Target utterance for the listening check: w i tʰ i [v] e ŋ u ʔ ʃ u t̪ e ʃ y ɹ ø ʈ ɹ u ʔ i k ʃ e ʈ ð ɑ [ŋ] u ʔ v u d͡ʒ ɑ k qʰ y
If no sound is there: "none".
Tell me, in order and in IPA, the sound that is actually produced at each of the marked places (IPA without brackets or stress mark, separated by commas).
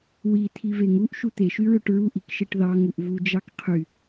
v, ŋ